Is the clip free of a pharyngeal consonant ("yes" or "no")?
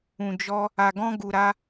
yes